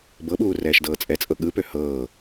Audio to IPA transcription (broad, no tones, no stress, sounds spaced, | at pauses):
b ɤ ɓ uː r ɛː ʃ d ɤː t͡sʼ ɛ t͡sʼ ɤ ɠ ɯ p ø h ɤː